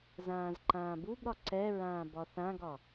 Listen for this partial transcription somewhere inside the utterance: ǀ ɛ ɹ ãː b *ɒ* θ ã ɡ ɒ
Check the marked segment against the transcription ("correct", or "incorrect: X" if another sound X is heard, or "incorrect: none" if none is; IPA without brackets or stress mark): correct